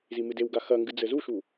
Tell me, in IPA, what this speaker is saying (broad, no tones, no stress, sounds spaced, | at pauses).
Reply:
z i m ɨ d e w ɡ a x ɐ ŋ ɡ ɨ d͡z ɘ z u ʃ u